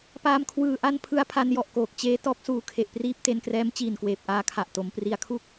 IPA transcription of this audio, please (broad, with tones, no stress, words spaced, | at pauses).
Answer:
paː˧mkʰwɯː˨˩ ʔa˥˩npʰɯ˦˥a̯ pʰa˧njɔ˨˩ʔkoː˨˩k̚ t͡ɕeː˦˥ tɔː˦˥p̚suː˨˩kʰe˨˩ʔpriː˦˥p̚ te˧nkrɛː˦˥mt͡ɕiː˨˩n kweː˨˩p̚ʔaː˧kʰa˨˩ʔto˩˦m pri˨˩a̯kʰu˥˩k̚